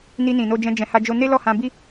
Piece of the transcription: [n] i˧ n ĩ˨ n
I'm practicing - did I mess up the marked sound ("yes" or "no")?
no